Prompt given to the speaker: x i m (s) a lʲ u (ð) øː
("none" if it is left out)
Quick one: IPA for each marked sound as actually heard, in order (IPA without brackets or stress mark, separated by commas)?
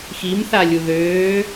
θ, ð